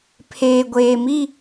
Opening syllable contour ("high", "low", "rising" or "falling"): low